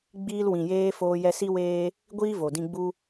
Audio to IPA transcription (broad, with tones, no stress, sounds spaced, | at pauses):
ɡ͡b iː˧ l w ĩ˨ j eː˧ f oː˧ j ɛ˧ s i˦ w eː˦ | ɡʷ iː˦ v o˨ d ĩ˧ ɡ͡b u˦